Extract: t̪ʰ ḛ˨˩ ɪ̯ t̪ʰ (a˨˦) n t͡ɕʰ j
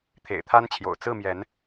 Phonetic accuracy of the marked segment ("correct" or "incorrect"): incorrect